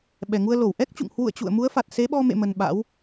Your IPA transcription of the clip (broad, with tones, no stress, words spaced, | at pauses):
ɓɛ˨˩ŋu˧ə̯lo˧˩w ʔɛ˦˥k̚t͡ɕṵ˧˨ŋ hwṵ˧˨ə̯ t͡ɕṵ˧˨ə̯mu˨˦ə̯fa˨˩t̚ se˨˦ɓɔ˧mḛ˧˨mə˨˩n ɓa̰˧˥w